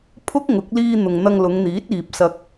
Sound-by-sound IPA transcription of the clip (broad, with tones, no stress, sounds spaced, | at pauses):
pʰ ʊ˥ k̚ ŋ ʊ˨˥ k̚ l iː˧ n̪ ʊ˨ ŋ n̪ ɐ˧ ŋ l ʊ˨˧ ŋ n̪ iː˨˥ t̚ iː˨ p̚ s ɐ˧ k̚